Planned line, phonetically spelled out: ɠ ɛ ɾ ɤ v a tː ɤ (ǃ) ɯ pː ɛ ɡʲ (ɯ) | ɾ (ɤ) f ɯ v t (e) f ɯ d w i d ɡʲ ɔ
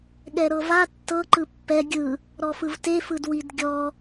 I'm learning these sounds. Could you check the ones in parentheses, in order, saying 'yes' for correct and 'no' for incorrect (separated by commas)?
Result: yes, yes, no, yes